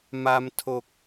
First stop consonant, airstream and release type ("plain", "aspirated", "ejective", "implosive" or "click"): aspirated